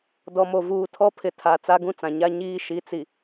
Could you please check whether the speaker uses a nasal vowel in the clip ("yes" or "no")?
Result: yes